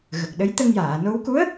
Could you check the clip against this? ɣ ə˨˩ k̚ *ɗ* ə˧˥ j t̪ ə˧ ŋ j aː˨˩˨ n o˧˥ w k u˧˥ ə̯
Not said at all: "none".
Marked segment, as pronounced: ɗ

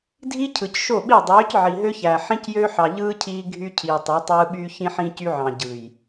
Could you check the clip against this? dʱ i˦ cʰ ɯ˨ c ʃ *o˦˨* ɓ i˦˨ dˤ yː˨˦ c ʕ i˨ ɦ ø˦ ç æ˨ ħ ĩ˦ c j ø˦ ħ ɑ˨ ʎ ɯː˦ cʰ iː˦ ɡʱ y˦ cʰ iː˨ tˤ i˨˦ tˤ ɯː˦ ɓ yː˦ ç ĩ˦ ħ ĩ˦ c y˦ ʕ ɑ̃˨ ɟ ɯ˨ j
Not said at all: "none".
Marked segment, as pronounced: o˦˨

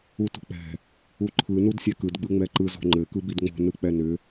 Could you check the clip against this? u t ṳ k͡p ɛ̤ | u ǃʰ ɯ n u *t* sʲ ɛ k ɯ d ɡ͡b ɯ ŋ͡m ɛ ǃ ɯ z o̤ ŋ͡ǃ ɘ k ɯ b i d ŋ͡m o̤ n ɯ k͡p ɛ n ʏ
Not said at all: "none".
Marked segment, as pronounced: d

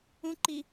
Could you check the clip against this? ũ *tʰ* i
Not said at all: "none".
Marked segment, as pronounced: ǃ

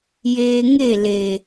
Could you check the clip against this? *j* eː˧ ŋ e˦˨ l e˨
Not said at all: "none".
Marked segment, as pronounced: j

